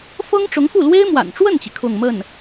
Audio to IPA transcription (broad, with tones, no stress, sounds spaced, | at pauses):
f ɤ˥ ŋ ʈ͡ʂ ʊ˧˥ ŋ f u˥˩ l w e˥ ɪ̯ m w a̰˨˩ n ʈ͡ʂ w ə˥˩ n t͡ɕ i˩ kʰ ʊ˥˧ ŋ m ə˥˩ n